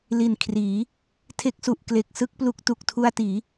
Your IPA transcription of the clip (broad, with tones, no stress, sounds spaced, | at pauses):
l i˨˩ n kʰ r iː˩˦ | tʰ e˦˥ k̚ s u˨˩ ʔ k l e˨˩ k̚ s ɯ˥˩ k̚ p l u˦˥ k̚ t u˨˩ k̚ tʰ u˧ a̯ t iː˩˦